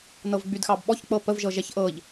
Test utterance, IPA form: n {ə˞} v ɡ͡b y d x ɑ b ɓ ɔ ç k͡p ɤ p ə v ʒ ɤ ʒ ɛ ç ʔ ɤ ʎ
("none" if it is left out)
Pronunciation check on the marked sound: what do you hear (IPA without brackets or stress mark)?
ɤ